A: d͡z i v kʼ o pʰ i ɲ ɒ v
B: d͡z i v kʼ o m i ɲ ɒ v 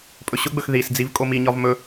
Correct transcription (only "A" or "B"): B